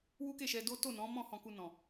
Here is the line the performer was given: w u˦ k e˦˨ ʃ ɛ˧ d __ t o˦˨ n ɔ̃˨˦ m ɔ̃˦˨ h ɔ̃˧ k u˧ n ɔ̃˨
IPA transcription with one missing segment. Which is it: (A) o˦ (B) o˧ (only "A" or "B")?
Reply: A